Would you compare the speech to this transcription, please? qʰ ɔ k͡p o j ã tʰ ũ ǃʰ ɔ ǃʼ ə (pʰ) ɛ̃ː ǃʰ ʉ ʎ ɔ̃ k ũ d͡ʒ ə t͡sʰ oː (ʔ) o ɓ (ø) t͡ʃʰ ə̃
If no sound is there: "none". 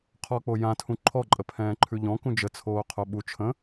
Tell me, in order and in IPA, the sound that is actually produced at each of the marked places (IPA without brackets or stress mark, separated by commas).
pʰ, qʰ, u